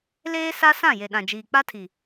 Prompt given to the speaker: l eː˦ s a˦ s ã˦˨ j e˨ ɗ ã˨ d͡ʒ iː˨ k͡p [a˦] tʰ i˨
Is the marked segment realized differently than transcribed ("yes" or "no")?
no